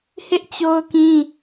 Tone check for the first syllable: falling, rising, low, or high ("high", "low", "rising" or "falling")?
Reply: high